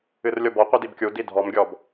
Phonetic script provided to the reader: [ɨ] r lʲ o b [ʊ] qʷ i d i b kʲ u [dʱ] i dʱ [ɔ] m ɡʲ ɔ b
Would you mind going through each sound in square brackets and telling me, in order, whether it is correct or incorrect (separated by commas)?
correct, incorrect, incorrect, correct